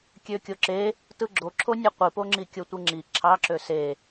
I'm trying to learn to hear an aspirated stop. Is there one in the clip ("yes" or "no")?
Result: yes